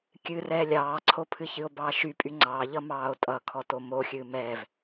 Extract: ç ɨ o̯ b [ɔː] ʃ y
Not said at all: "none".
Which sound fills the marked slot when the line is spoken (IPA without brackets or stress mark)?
ɑː